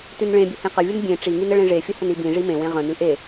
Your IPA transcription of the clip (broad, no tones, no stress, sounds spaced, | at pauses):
t ʉ n ɭ ẽ bʲ ʊ h ẽ q ə vʲ ʊ n bʲ ẽ ʈ͡ʂ i ŋ i n ə ɭ ẽ ʐ e fʲ ə h ə n i b ĩ ʐ i m ẽ w ẽ ʁ ə̃ n ʉ ʔ e